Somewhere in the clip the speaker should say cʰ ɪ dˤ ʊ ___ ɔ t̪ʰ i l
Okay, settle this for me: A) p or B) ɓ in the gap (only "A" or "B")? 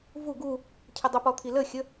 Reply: A